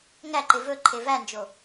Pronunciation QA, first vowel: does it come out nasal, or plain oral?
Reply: oral